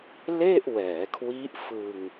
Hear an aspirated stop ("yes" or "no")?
yes